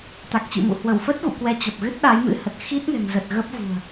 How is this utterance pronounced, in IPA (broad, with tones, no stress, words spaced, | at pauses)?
t̪a˨˩k̚t͡ɕḭ˧˨mṵ˧˨ hwə˧˩wfə˦˥t̚ ɣṵ˧˨kwɛ˨˦ t͡ɕə˨˩p̚ɣɨ˦˥t̚ ɗa˨˦jmɨ̰˧˥hə˨˩t̚ xi˦˥t̚ŋɛ̤˨˩ŋzə˨˩t̚ ɣə˦˥p̚vṳ˨˩ə̯